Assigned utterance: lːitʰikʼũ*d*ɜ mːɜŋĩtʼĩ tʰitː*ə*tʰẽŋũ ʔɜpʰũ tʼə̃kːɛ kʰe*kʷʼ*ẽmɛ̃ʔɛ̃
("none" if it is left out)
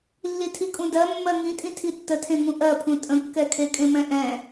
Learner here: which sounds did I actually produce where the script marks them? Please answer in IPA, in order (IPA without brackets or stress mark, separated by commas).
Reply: d, ə, kʼ